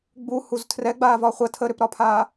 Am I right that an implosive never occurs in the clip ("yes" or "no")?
yes